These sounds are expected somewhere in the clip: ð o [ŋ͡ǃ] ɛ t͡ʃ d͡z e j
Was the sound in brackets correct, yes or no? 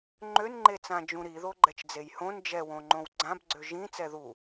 no